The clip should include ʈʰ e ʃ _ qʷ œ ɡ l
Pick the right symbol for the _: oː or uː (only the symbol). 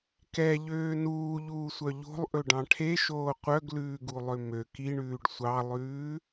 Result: oː